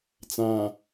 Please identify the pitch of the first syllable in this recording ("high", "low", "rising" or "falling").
low